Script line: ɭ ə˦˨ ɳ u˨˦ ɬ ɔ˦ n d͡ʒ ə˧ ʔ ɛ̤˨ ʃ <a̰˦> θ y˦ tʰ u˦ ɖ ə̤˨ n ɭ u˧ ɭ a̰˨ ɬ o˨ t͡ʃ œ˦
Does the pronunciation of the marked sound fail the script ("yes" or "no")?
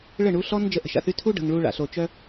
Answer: yes